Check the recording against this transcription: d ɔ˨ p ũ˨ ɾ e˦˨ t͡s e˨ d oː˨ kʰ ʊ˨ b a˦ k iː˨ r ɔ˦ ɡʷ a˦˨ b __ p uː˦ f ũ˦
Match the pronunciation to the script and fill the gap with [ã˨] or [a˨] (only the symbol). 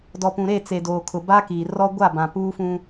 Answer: ã˨